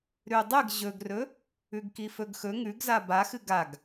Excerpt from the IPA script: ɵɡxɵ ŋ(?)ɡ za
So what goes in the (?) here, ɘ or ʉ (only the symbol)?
ʉ